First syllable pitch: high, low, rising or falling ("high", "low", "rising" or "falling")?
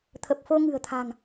low